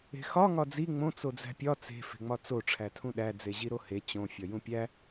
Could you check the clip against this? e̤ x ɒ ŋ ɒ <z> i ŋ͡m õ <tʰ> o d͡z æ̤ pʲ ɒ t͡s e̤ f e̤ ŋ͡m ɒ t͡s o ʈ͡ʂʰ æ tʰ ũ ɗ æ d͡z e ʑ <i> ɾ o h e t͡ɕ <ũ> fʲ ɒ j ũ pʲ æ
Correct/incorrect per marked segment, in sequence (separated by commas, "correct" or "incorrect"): incorrect, incorrect, correct, incorrect